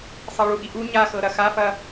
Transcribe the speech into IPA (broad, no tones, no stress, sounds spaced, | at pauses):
sˤ ɤ ɭ u ʔ i ʔ u ɲ a x ɤ ɾ ɐ x a f ɐ